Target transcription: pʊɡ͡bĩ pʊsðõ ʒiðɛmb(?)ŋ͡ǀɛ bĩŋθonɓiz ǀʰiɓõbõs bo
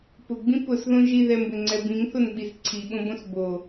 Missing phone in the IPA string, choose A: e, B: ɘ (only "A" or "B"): B